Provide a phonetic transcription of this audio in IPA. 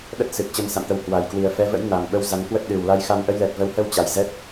ɗ ə˦˥ t̚ s ɨ˨˩ k̚ t͡ɕ ə˧ m s a̰˧˨ m t̪ ə˨˦ w h w a˨˩ j k w i˨˩ ə̯ f ɛ˨˦ v ə̰˧˥ j n a˨˩ m ɓ ə˧ w z a˨˦ n k w ə˦˥ t̚ ɗ ɨ˨˩ w l a˧ j x a˧ m ʔ ə˧ j l ɛ˨˩ t̚ v ə˨˦ w h ə˧ w t͡ɕ a˨˩ j z ɛ˦˥ t̚

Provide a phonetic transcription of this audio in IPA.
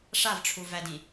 ʂ a v ʈ͡ʂʰ u v æ d ĩ

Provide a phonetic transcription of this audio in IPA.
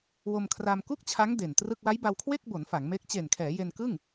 w o˧ m kʰ r a˧ m k u˥˩ k̚ t͡ɕʰ a˦˥ ŋ d e˨˩ n t r ɯ˥˩ k̚ w a˦˥ j b a˧ w kʰ w e˥˩ k̚ b o˩˦ n f a˩˦ ŋ m e˦˥ k̚ t͡ɕ e˨˩ n kʰ ɛː˩˦ j e˧ n k ɯ˥˩ ŋ

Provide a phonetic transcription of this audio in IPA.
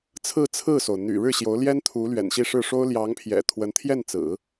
t͡sʰ ɹ̩˥˧ t͡sʰ ɹ̩˥˩ s o˩ ʊ̯ n̪ y̰˨˩ ɻ ɻ̩˥˩ ɕ j o˧˥ ʊ̯ l j ɛ˥ n t̪ʰ u˧˥ l ɥ ɛ̰˨˩ n ɕ i˥˧ ʂ ɻ̩˥˩ ʂ o˥ ʊ̯ l j ɑ˧˥ ŋ pʰ j ɛ̰˨˩ t̪ʰ w ə˧˥ n t̪ʰ j ɛ˥˩ n t͡s ɹ̩˨˩˦

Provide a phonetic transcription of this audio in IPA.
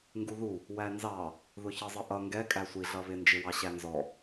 ŋ ɡ u ð u | w æ n z ɑ | ð ʊ ç ʌ zˤ ʌ ʔ ʌ ŋ ɡ ɛ kʼ æ sʷ i ɮ ʌ β ɪ n d͡ʒ ɪ w ɑ ɕ æ n z ɔ

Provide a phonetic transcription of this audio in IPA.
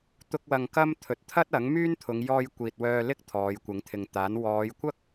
t̪ ʊ˥ k̚ w ɐ˧ ŋ k ɐ˥ m t̪ʰ ɵ˨˥ t̚ t̪ʰ ɐ˥ t̚ ɐ˨˥ ŋ m yː˥ n t̪ʰ ʊ˨˧ ŋ j ɔː˧ j kʷ iː˨ t̚ w œː˧ l ɪ˥ k̚ t̪ʰ ɔː˨˧ j kʷ ɪ˨˧ ŋ t̪ʰ ɪ˨ ŋ t̪ aː˨˥ n w ɔː˨˧ j kʷ ɐ˥ k̚

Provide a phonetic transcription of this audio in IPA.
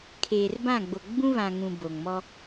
kʰ eː˨ r b ã˦˨ ɡ͡b o˨ ɡ͡b ũ˦ β ã˨ ŋ ũ˨ b o˨ ŋ m ɔ˦

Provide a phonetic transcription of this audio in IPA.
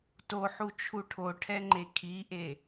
t o ħ u t͡ʃʰ u ʈʰ o ʈʰ ɛ ŋ͡ǃ e kʰ i ʔ e

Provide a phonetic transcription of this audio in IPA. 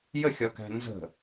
j ə xʲ ɒ k æ̤ n z ə̤

